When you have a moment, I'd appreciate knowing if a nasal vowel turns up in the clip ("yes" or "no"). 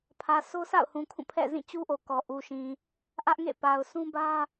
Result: yes